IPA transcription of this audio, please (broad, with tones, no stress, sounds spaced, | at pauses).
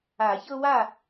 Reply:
a˨˩˦ ç ɤ˦ w a˥˨